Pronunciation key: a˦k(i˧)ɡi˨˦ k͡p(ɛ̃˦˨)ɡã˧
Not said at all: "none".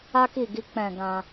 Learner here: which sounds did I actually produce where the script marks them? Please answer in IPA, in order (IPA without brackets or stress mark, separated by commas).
i˦˨, ɛ̃˦˨